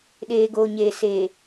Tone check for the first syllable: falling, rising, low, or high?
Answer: low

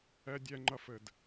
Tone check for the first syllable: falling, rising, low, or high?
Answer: high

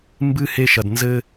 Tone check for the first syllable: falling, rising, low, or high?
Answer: high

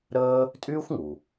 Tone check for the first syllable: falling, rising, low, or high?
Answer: high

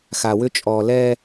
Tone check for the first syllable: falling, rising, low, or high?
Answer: low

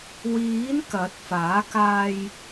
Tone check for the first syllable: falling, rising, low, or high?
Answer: rising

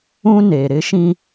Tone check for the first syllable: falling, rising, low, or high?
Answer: high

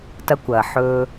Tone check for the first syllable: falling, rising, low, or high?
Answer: high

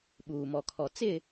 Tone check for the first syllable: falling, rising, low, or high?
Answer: low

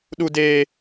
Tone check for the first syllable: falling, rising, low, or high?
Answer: high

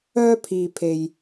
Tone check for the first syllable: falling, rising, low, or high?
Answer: high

